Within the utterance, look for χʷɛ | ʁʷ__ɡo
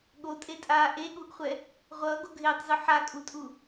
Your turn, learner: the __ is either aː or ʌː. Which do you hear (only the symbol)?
ʌː